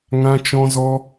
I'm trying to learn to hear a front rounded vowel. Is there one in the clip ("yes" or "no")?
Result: no